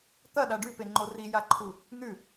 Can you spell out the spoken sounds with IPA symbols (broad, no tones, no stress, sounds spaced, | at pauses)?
t̪ ɐ ɗ a ɖ ʉ p e ŋ͡ǃ o r i j a ǃʰ u | n̪ ʉ